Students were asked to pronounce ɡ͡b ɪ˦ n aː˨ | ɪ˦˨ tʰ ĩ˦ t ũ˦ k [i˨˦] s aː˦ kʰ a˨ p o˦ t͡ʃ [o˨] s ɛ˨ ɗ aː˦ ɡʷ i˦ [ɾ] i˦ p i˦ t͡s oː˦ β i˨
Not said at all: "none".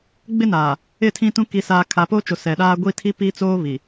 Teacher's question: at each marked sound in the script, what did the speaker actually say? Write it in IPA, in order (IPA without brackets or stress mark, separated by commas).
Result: i˦, o˨, tʰ